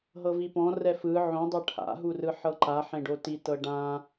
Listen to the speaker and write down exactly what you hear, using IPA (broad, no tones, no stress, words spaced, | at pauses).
ɦɤvipɔ̃ rɛfɯ ʕõdˤɤ ʈʰa̰ɦurɯ ħɤǃaħẽɖo titɤ ɖã